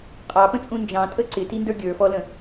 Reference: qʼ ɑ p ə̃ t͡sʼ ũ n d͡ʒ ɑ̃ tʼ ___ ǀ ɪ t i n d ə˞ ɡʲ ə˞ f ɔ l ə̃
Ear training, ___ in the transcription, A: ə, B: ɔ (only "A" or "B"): A